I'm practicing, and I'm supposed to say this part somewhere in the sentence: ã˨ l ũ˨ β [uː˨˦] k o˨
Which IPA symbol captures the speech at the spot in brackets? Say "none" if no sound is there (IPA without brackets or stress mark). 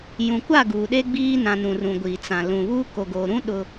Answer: uː˦